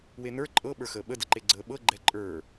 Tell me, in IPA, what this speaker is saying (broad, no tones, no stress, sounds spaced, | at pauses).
w e n ə˞ ǃʼ ɤ ɓ ə˞ x əː ɓ ə d ə ǃ e ɡ͡ǀ əː ɓ ɤ ɡ͡ǃ ɛ ǃʼ ə˞